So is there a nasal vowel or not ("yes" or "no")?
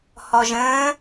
yes